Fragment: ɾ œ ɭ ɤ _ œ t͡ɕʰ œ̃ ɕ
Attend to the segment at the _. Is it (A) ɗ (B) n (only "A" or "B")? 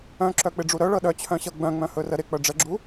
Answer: A